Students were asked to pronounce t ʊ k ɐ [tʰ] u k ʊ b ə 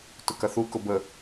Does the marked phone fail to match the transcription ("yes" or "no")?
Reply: yes